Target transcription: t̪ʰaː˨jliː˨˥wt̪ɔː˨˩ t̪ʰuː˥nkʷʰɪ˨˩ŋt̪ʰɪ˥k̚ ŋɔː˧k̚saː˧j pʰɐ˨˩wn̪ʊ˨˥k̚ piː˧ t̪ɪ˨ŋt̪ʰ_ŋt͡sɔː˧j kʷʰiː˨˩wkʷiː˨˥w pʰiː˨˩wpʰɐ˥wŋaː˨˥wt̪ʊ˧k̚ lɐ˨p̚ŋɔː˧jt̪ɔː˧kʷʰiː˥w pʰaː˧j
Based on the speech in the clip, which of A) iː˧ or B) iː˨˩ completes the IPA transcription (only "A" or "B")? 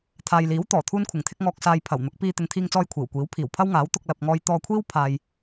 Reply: A